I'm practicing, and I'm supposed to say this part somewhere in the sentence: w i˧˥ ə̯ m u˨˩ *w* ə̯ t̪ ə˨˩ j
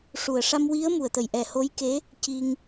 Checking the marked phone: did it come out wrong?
yes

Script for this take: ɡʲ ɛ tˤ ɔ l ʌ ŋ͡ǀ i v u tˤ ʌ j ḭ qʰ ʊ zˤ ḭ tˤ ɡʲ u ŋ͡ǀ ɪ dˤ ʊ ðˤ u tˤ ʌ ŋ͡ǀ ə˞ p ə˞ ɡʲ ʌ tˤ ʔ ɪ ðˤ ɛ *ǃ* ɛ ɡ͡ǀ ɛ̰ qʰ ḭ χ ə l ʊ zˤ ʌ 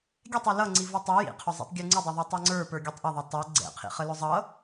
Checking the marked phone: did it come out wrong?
yes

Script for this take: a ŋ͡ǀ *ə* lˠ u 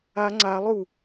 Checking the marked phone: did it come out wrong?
yes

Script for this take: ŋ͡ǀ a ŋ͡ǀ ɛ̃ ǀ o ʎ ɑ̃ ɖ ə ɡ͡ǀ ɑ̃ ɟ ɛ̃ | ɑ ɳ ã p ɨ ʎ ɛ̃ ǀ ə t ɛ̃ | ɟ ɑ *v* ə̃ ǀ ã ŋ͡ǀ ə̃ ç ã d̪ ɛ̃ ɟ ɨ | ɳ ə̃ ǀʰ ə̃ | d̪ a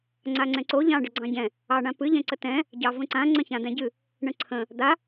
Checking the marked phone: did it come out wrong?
no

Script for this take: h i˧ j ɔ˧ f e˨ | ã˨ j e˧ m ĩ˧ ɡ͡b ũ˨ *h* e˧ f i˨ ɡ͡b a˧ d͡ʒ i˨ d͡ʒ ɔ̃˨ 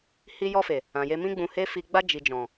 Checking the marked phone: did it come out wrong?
no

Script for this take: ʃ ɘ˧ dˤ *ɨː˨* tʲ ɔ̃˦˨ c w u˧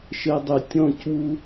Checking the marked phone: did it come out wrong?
yes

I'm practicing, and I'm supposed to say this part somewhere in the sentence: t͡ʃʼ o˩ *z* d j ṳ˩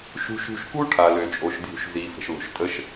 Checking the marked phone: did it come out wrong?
yes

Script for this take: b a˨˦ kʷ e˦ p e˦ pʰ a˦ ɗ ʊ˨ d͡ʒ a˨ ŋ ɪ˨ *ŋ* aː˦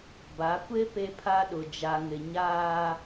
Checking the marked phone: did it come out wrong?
yes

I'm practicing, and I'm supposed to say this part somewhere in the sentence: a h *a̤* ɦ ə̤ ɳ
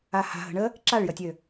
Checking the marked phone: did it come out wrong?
no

